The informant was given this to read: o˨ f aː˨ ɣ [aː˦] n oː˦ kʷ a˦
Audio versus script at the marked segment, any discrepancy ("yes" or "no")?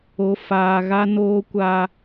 yes